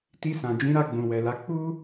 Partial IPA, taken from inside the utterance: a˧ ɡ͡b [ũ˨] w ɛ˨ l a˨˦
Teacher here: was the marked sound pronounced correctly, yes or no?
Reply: yes